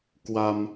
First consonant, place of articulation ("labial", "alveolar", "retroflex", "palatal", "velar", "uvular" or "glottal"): velar